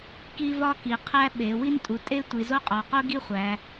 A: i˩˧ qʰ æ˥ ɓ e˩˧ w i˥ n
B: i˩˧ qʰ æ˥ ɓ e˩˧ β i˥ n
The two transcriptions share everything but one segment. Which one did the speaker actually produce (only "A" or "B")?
A